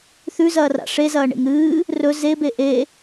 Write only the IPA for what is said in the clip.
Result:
θ ʉ z ɐː r a̰ ʂ e z ɐː ɳ ḛ ŋ ɾ ɨː | r ɵ z e b e ʔ e

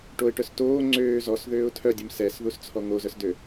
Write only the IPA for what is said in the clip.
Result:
ʈ o ɪ̯ ʈ œ s t oː ŋ͡ǀ øː z ɔ s ð øː ʊ̯ tʰ œ dʲ u m s ɛ s ð u s t͡sʰ ɔ ŋ o z œ s d ø

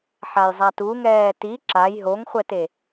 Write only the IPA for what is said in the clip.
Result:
ħ a j zˤ a t u ŋ ɛː t i ǁ a j ɦ o ŋ χʷ ɛ t e

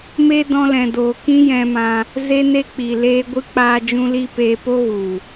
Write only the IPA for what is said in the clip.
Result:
m e˦ d ɔ̃˧ l ɛ̃˨ d oː˨ k ĩ˦ j ɛ̃˧ m ã˧ | z e˦ n e˦ k͡p i˨ l eː˧ ɡʷ ɨ˧ k͡p aː˧ d͡ʒ ũ˦ l i˦ p eː˧ p o˦ ɣ u˨

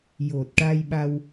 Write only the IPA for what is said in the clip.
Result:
j o˨˩ t̚ ʈ a˧ j ɓ a˧ w

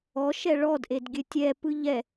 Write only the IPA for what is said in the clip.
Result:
ɔ ʃ ɛ ɭ ɔ d ʔ e d ɡʲ ɘ tʲ ɛ p ɯ ʎ ɛ

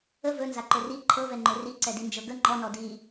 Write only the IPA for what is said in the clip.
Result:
ə v ɵ n z a ǃ ɵ r i ǃʰ ɤ v ɛ ŋ͡ǃ ɵ r i ǀ ɛ d i n d͡ʒ ɤ ɡ ə ŋ͡ǃ ɔ n ɔ d i

